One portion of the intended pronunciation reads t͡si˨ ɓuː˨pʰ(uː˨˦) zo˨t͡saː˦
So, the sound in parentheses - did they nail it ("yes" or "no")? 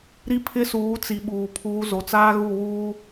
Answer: yes